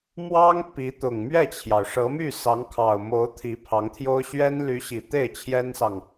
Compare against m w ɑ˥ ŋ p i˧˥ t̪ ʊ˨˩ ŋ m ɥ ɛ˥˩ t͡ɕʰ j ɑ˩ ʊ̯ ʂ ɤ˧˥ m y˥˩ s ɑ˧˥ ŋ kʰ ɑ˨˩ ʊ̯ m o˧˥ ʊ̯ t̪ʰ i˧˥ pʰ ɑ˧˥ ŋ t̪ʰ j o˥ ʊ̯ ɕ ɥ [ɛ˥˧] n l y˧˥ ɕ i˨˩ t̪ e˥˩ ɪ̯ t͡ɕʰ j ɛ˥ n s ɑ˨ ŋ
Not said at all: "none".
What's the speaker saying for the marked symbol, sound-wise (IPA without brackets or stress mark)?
ɛ˥